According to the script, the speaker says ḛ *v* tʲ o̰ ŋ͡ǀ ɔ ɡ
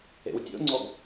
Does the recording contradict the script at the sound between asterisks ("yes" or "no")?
yes